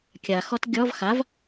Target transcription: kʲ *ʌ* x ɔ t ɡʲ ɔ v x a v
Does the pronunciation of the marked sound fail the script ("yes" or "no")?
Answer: yes